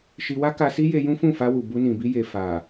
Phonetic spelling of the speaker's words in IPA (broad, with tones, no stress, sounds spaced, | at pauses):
ʃ i˧ w a˦ k a˧ s i˦ j e˧ j ũ˦ f ũ˦˨ f a˧ w u˨ b u˧ n ĩ˨ b i˧ j e˨ f a˨